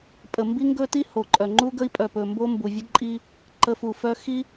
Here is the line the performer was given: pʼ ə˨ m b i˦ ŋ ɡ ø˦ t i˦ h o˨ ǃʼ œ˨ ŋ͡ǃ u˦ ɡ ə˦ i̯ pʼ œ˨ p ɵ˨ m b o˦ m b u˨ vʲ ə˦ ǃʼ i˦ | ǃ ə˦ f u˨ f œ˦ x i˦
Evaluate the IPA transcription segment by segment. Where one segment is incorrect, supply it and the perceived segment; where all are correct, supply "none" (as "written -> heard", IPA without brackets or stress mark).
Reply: ø˦ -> ɵ˦